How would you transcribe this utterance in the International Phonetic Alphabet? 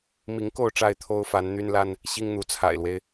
m i˨˦ ŋ k o˥˨ ʊ̯ ʈ͡ʂ a˥˨ ɪ̯ t̪ʰ o˦ ʊ̯ f a˨˦ n n̪ y˦ n l a˦ n | ɕ i˦ ŋ n̪ u˨˦ t͡sʰ a̰˨˩ ɪ̯ l w e˦ ɪ̯

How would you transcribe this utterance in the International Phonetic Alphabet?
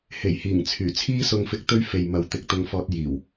h e˨˩ j h iː˨˩ ŋ t͡sʰ yː˨˩ t͡sʰ iː˥ s ʊ˧ ŋ f ɪ˧ k̚ t̪ ɵ˥ ɥ f e˨ j m ɐ˨ w t̪ ɪ˧ k̚ t̪ ʊ˧ ŋ f ɔː˧ t̚ j iː˨˩ w

